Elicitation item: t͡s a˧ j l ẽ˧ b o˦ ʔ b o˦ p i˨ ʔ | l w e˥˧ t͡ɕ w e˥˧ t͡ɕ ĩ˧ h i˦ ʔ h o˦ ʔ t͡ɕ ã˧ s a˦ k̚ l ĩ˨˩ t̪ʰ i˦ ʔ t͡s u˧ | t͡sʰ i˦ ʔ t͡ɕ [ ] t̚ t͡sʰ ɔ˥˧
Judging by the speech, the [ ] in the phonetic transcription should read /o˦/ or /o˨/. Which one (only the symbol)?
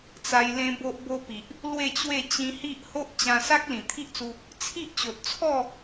o˨